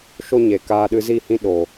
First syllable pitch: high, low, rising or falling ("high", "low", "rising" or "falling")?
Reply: high